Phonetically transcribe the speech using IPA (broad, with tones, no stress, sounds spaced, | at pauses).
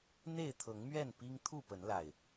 n̪ e˥˨ ɪ̯ t̪ʰ ɤ˨˦ ŋ m ɥ ɛ˥˨ n p i˦ ŋ t̪ʰ u˥˨ p ə˨˦ n l a˨˩ ɪ̯